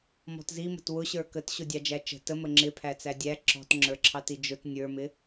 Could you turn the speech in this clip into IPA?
m ɔ̤ t z i m ə̤ t w ʊ ɕ ə˞ k ə t ɕ ʊ dʲ ɑ d͡ʒ æ t͡ʃ ə̤ t ə m ə ŋ͡ǁ ɪ pʰ æ t͡s æ dʲ æ ǁ ɔ̤ t ŋ͡ǁ ə˞ ǁʰ ɑ t i d͡ʒ ʊ t nʲ ə˞ m ɪ

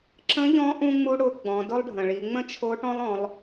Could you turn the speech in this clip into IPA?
ǁ ə̃˧˥ ʎ ɔ̃˧˥ ʔ ũ˥ ŋ͡m u˥ ɽ ʊ˧˥ ɡ͡b ɔ̃˩˧ d ʊ˥ lˠ ɖʱ ə̃˩ ɭ i˩˧ ŋ͡m ə̃˥ t͡ʃʰ o˧˥ ʈ ɔ̃˥ lˠ ɔ̃˧˥ lˠ

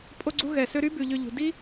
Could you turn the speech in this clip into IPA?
pʼ o˧ ɡ͡ǀ u˧ ɣ ɛ˩ s ø˧ ɾ y˥ b ʉ˩ ʎ ø˧ ʎ ṳ˩ d i˥

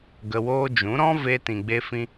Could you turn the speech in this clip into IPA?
ɡ ə˧ w oː˦ d͡ʒ ũ˨˦ ɾ ɔ̃˦ v e˧ t ĩ˨ ɡ͡b e˧ f ĩ˧

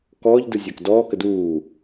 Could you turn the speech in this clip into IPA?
k ɔː ʎ d ɯ zʲ ɐː k d ɔː k ə d uː

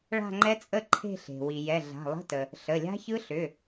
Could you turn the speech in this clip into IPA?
ɭ a̤˥˧ ŋ͡ǃ ɛ˦˥ t͡sʼ ə˥˧ ǃʰ e̤˥˧ ɬ e̤˩ w i˩ j ɛ˩˧˩ ɮ a̤˩˧˩ lˠ ə̤˧˥˧ t ə˩ | ɬ ə˩˧˩ lʲ a̤˦˥ ç ɯ˦˥ ɬ ʏ˩˧˩

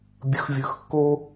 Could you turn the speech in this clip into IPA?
bʲ ɯ˨ x vʲ ɯ˨ x kː o˦

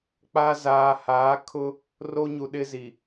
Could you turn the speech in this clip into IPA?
k͡p a˦ z aː˨ h aː˨˦ kʰ ʊ˦ | r o˦ ɲ u˨ ɗ ɪ˦ z i˨

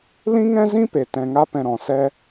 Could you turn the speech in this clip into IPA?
l ĩ˦ ŋ ɛ̃˦ z ĩ˦ p e˨ t ɛ̃˧ ŋ a˦ p ɛ̃˧ ɾ ɔ̃˨ s ɛ˦

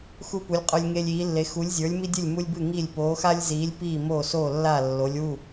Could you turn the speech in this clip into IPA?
x u˦ p u˨˥ lʲ qʼ ə˞˦ lʲ ŋ e˦ lʲ iː˨˥ lː e˨˥ x u˨˥ lʲ zʲ ə˞˨˥ lʲ m i˦ dʲ ɨ˥˩ lʲ m u˦ lʲ b ɨ˥˩ ŋ i˥˩ lʲ p oː˨˥ x a˦ lʲ z iː˨˥ lʲ p iː˥˩ m oː˥˩ s oː˥˩ lː a˥˩ lː o˨˥ lʲ w u˥˩

